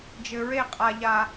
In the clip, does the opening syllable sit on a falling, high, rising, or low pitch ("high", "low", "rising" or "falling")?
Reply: low